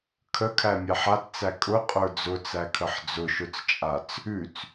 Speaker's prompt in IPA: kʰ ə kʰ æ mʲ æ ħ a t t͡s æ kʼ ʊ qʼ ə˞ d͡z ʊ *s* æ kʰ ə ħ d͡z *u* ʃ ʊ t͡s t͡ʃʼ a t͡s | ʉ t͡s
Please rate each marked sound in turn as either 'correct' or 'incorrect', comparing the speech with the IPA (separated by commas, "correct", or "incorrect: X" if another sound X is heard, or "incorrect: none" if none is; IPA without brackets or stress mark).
incorrect: t͡s, incorrect: ʊ